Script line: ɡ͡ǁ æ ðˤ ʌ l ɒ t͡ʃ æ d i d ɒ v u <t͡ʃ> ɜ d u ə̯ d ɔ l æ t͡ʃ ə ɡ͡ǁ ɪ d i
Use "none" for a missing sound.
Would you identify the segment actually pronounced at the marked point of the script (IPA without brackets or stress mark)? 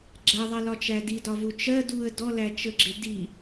t͡ʃ